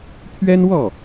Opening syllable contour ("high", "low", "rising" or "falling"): high